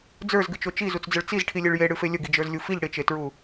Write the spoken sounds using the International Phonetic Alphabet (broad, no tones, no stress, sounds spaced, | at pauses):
d͡z ə˞ z ɡ ɨ t͡ʃ o t͡ʃ i z u t͡s d͡z ə ɭ t͡s i z ʈʰ i lʲ e ɭ j e ɽ ɨ f e lʲ ə ɡ i d͡ʒ ə˞ z lʲ u f i ʎ ɽ ɪ t͡ʃ e t ɹ u